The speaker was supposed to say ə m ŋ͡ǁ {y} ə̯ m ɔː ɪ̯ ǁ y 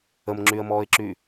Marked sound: correct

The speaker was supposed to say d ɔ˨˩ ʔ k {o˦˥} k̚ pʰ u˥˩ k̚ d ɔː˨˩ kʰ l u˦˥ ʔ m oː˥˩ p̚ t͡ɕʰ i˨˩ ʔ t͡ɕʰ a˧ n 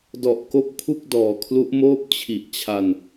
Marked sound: correct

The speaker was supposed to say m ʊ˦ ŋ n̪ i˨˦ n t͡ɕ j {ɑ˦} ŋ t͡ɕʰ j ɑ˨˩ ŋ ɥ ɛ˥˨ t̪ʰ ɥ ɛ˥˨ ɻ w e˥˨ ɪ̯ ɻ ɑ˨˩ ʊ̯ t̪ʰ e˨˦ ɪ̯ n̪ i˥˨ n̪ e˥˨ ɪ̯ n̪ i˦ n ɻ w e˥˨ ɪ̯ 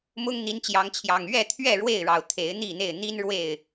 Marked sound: incorrect: ɑ˨˦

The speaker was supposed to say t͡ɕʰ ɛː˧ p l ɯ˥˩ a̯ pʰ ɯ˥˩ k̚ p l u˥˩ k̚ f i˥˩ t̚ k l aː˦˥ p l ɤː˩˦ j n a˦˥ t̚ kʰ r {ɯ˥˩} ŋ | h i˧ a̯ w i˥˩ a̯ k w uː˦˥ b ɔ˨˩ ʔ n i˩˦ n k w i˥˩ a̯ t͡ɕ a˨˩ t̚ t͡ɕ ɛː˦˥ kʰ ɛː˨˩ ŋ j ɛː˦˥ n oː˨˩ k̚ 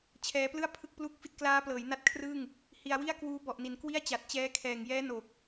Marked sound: incorrect: ɯː˥˩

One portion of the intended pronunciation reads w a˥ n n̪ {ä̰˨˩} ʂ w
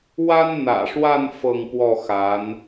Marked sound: correct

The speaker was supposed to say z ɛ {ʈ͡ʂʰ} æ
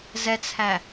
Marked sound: incorrect: t͡sʰ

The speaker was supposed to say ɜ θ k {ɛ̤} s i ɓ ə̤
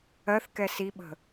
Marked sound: incorrect: ɛ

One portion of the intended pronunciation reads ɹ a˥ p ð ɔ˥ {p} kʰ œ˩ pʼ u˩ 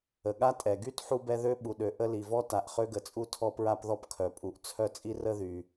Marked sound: correct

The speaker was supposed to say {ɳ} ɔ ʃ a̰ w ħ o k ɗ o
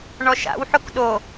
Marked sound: correct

